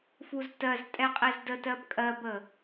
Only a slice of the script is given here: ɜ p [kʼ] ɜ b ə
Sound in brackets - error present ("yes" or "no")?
no